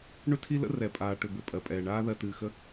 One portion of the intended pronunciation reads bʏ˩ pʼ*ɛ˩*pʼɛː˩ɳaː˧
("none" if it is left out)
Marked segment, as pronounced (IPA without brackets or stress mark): ɜ˩